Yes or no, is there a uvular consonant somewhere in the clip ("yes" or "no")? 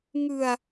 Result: no